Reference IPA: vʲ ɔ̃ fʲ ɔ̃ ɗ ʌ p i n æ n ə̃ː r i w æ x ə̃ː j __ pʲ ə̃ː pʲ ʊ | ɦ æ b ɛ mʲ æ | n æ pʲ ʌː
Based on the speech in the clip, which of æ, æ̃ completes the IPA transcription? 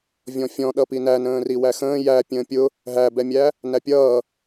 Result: æ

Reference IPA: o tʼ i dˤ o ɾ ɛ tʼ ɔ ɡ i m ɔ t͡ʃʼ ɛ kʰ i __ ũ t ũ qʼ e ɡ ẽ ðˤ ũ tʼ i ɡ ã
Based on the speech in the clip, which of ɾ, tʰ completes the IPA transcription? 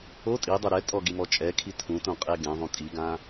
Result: tʰ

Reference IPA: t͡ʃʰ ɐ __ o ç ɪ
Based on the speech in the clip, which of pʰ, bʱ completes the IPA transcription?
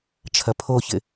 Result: pʰ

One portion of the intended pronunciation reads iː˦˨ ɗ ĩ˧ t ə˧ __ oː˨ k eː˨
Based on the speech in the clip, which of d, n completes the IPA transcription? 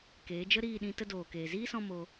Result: d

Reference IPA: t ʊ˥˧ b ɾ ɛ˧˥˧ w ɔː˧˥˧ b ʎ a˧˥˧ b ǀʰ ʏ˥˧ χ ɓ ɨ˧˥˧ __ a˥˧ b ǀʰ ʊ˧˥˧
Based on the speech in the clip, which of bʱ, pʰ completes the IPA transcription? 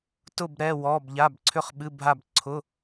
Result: bʱ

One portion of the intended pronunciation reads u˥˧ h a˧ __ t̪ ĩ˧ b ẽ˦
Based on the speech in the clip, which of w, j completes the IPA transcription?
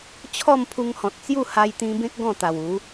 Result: j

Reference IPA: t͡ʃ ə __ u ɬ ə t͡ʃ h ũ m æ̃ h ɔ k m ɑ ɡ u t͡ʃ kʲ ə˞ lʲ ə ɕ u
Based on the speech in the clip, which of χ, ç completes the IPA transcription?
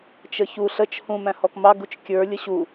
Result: ç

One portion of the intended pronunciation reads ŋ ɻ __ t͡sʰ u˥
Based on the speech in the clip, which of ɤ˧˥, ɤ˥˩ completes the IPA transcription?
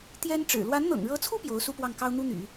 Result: ɤ˧˥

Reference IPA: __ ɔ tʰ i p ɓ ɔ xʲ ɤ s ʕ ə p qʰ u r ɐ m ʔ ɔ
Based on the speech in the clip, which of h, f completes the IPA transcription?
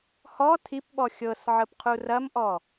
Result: h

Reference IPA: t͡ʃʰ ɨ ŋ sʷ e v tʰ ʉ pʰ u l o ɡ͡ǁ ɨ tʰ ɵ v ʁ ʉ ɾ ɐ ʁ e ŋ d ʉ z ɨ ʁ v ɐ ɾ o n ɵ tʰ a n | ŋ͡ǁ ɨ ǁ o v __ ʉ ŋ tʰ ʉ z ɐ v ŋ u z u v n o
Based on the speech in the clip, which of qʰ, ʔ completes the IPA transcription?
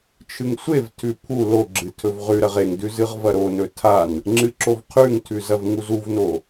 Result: qʰ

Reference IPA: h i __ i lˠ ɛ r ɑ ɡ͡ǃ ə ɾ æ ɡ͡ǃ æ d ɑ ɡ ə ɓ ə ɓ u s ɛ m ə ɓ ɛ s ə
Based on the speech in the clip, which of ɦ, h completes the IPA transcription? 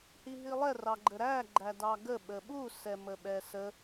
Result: ɦ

